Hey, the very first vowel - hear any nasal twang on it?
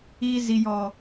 no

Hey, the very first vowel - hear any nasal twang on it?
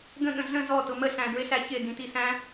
yes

